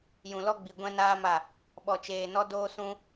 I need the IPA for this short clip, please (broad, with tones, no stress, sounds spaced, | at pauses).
j ũ˨ l ɔ˦ ɡ͡b i˨ ɡʷ ɛ̃˦ n aː˦ m a˦˨ | ɓ ɔ˨ t͡ʃ eː˨ n ɔ˦ d oː˦ s ũ˦